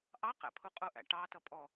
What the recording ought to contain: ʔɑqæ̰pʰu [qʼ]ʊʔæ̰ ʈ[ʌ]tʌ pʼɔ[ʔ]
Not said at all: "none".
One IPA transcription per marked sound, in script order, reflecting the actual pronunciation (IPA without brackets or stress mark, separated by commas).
qʼ, ɑ, none